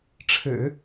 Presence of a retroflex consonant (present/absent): present